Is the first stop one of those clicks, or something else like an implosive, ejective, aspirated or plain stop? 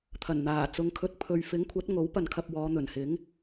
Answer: aspirated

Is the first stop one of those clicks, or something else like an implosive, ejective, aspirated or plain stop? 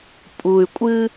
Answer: ejective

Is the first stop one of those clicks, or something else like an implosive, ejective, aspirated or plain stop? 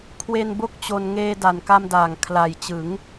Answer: aspirated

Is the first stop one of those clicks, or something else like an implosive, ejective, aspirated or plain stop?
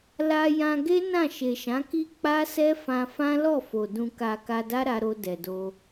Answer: plain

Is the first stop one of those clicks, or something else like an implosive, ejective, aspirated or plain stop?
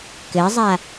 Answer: plain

